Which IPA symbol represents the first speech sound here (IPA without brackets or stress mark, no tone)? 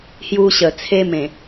h